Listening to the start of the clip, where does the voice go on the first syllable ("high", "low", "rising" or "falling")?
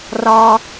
high